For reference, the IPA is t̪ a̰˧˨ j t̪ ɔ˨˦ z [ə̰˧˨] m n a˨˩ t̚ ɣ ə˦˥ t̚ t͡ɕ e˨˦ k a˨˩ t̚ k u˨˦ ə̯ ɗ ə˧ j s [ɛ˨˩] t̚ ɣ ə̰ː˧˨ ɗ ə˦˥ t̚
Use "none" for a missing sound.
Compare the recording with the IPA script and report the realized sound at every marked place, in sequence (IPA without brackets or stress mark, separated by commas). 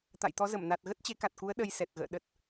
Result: ə˧˩, ɛ˨˩